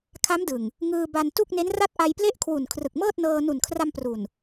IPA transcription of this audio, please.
kʰa˦˥mdɯ˨˩ŋ | ŋɯː˧ba˧n tu˥˩k̚ne˦˥nra˥˩t̚ ʔa˧jple˥˩ʔkʰwu˨˩n kʰrɯ˨˩k̚mɤː˥˩t̚nɤː˧ nu˨˩nkʰra˧m pru˨˩n

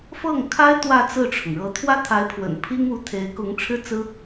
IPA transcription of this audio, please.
fɤ˥˩ŋkʰa˥ɪ̯ t̪wä˥˧t͡sɹ̩˥˩ʈ͡ʂʰʊ˩ŋ ɻɤ˧˥t̪ʰwä˥t̪ʰa˧˥ɪ̯pʰwə̰˨˩n pʰi˥ŋu˧˥t̪ʰe˧˥ɪ̯ kʊ˧˥ŋʈ͡ʂʰɻ̩˥˩ t͡sɹ̩˥

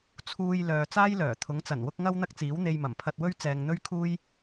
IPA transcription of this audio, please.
t͡sʰuː˧j lœː˨ t͡saː˥jlœː˨˩ t̪ʰʊ˨˥ŋt͡sɐ˨˩nwʊ˥k̚ ŋɐ˥w n̪ɐ˥k̚t͡siː˨˥wn̪e˧jmɐ˨˩m pʰɐ˧t̚wɵ˥ɥ t͡sɛː˨ŋ n̪ɵ˥ɥkʰuː˥j

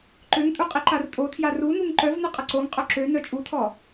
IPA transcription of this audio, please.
ǃøŋtʼu qʼiǃartʼotʰja runuŋ ǃœvnə qʼəǀoŋqʼœ ǁø nœt͡ʃʼutʰɔ

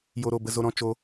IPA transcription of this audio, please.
jo˦ɾo˧bə˦zo˦ ɾɔ̃˦t͡ʃo˦

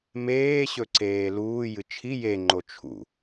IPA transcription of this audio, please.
meːɕɵǀeː luːjɨ t͡ʃʰi je ŋ͡ǃot͡ʃʰṵ

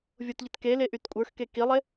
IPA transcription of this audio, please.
vʲotʎɪt ke leʔytkʷʼə˞xke kilˠe

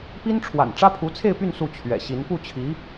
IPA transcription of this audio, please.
pi˥nʈ͡ʂʰwa̰˨˩n ʈ͡ʂä˥pʰu˧˥t͡sʰe˥˧ɪ̯py˥˧n su˥˩t͡ɕʰɥɛ̰˨˩ɕi˧˥n pu˥˩t͡ɕʰi˧˥

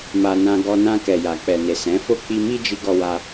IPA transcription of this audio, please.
ma˧nã˧ ɡɔ˧nã˧ kɛ˨ja˨k͡pɛ˨ne˨ sɛ̃˨˦fo˦ k͡pi˧mi˦d͡ʒi˧ ɡɔ˧wa˧

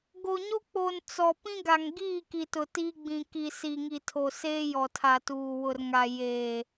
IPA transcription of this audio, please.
ɡo˨ɲo˦ k͡po˨n t͡sɔ˨ pĩ˦ɡa˨ŋɡiː˦˨ ki˨tʊ˨tiː˦ ɡ͡bĩ˨ki˨ si˨ŋi˨ tʰo˨seː˦jɔ˨tʰa˨ tuː˨wʊ˨rŋa˨ jeː˨

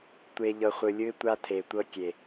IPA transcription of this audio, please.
tʷe˨ ʎɤ˨χʷɯ˨lʲɯ˦ɪ̯ tʷa˦tʰe˨tʷɤ˦ kʲe˨

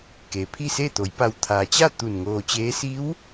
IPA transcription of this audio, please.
ke˩pʰi˥˨se˥˨t̪o˩˧j pa˧˩w t̪ʰaː˩t͡ɕa˥˨ t̪u˧˩nŋoː˧t͡ɕeː˧˥ si˧˥w

